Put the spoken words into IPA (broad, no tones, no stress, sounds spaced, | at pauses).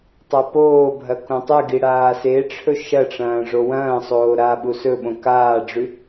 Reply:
tˤ a p oː bʱ ɐ k õ tˤ ɨ ɡ i ɽ aː s e ʈ͡ʂʰ ɵ ʃ ɐ ʈ͡ʂ ɐ̃ː ʐ o w ɐ̃ː sˤ oː ɾ aː ɓ u s ɵ ɓ õ k aː ɖ͡ʐ ʉ